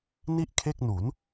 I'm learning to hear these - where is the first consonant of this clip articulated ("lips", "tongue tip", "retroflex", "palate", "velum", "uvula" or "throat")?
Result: tongue tip